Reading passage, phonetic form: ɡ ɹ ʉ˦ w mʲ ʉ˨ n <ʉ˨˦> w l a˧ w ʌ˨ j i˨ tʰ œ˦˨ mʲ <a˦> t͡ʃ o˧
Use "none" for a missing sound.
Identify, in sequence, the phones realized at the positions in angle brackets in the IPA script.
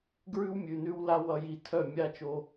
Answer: ʉ˧, a˦

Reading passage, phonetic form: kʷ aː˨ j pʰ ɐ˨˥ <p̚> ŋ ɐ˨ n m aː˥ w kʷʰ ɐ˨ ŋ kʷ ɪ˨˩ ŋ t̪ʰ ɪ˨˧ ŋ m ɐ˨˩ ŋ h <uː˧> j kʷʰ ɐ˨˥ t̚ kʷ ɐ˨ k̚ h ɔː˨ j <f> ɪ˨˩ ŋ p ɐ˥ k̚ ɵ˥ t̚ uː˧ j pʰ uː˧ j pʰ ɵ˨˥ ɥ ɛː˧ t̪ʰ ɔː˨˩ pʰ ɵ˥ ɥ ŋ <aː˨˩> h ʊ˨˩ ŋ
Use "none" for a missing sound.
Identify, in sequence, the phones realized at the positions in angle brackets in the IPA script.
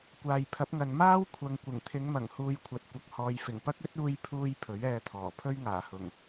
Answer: p̚, uː˧, f, aː˨˩

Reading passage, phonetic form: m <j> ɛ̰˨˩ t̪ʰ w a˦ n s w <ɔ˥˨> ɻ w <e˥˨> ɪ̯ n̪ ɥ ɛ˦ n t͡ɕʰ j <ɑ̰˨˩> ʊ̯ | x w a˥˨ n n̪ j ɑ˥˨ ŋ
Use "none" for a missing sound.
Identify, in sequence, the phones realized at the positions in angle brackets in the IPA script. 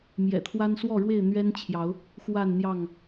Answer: j, ɔ˥˨, e˥˨, ɑ˨˦

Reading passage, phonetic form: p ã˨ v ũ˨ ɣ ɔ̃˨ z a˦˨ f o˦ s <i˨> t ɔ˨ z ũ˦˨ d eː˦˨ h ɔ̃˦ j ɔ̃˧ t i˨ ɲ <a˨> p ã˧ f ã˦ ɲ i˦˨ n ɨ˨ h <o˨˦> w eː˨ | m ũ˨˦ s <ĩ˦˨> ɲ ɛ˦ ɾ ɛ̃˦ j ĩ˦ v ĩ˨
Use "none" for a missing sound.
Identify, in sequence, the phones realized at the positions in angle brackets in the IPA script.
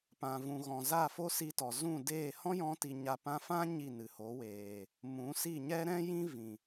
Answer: i˧, a˨, o˨˦, i˦˨

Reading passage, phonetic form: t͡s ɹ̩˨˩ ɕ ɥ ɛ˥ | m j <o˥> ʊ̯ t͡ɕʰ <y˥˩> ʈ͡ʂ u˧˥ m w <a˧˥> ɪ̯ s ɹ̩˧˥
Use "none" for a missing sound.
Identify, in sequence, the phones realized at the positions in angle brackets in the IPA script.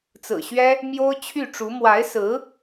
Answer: o˥, y˥˩, a˧˥

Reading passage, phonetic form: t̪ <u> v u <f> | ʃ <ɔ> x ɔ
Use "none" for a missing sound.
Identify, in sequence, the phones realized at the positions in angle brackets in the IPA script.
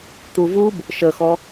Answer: u, b, ə

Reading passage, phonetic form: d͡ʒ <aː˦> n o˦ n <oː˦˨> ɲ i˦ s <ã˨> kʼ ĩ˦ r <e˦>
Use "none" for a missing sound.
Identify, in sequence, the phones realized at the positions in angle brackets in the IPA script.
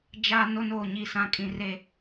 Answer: a˦, oː˦˨, ã˦, e˦

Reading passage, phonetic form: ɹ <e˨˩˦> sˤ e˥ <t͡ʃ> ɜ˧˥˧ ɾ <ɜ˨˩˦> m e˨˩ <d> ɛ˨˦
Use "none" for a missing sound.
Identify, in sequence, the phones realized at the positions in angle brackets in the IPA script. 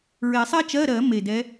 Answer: e˨˩˦, t͡ʃ, ɜ˨˩˦, d

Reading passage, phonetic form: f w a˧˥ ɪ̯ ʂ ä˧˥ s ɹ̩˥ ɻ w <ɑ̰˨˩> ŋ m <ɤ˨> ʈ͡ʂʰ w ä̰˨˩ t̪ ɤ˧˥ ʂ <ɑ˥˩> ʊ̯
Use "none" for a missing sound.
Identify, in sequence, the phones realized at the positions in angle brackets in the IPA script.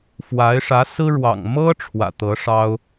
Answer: ɑ̰˨˩, ɤ˥, ɑ˥

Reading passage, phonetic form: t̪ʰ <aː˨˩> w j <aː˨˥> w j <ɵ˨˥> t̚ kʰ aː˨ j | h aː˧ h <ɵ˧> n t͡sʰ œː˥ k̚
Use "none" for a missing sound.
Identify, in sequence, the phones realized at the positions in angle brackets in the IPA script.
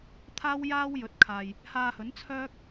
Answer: aː˥, aː˥, ɵ˨˥, ɵ˨˥

